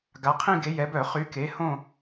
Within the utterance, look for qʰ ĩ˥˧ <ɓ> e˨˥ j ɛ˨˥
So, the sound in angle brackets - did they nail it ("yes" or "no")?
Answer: no